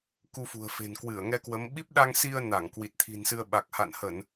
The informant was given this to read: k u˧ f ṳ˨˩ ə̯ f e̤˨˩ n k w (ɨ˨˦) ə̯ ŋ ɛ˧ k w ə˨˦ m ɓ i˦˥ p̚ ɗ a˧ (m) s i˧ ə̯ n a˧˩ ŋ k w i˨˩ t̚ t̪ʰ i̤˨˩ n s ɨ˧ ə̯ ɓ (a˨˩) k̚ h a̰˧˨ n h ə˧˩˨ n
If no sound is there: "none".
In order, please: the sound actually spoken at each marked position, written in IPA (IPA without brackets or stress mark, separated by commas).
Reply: ɨ˧˩, ŋ, a˨˩